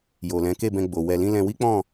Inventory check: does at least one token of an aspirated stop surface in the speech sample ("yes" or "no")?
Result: no